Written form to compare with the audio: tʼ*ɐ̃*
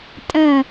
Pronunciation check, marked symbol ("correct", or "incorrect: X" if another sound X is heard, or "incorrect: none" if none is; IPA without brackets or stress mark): incorrect: ə̃